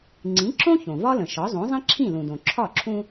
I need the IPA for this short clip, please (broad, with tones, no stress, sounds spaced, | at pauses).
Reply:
ŋ͡ǀ ĩ˩˥ ǁ õ˥ ç õ˩ v ɒ˥ l ə̃˩ ʃ ɒ˩˥ zˤ õ˩˥ zˤ ĩ˥ ǁʰ ĩ˥˩ l ũ˩ d õ˩ ǁʰ ɒ˥˩ ǁʰ ũ˧